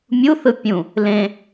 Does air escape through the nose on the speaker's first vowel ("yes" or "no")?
no